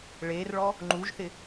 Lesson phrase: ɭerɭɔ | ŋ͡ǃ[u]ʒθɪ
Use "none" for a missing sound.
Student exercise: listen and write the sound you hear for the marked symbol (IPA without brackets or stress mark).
u